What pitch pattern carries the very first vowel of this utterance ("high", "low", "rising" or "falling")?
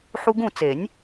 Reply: high